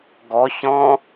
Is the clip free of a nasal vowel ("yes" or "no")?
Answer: no